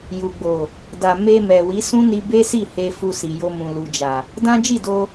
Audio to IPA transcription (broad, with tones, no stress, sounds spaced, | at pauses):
j u˨ ɡ͡b o˨ | d a˨ m e˧ m ɛ˨ w i˨˦ s ũ˦ n i˧ b e˦ s i˦˨ h e˧ f u˧ s i˨ j o˧ m ũ˨ l u˨ d͡ʒ a˨ | d ã˦ d͡ʒ i˦˨ d o˧